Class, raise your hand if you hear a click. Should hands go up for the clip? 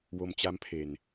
no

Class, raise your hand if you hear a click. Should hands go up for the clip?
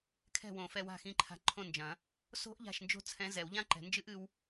yes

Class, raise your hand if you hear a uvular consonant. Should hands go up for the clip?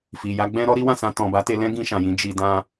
no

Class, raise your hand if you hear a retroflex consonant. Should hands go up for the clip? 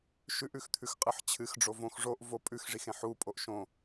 yes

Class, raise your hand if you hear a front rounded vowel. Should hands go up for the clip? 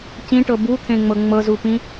no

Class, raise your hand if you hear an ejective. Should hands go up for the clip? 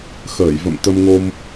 no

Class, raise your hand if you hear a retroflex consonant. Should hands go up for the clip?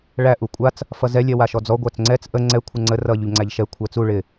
yes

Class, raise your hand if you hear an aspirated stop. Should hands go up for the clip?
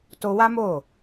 no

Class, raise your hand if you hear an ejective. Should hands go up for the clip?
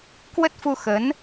no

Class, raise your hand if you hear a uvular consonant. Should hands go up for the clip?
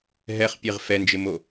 yes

